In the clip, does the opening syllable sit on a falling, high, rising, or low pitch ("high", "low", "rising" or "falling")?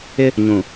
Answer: high